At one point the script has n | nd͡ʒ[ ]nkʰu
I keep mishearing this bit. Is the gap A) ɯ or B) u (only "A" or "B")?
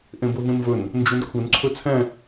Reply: B